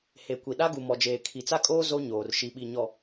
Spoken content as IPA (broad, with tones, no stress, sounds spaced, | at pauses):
h e˨ kʷ i˨ ɗ a˦ ɡ u˨ m ɔ˨ d͡ʒ eː˨ kʰ i˨ t͡s a˦ kʼ oː˦ z o˦ ɲ oː˨ r ʃ i˨ ɓ i˨ ɲ ɔ˨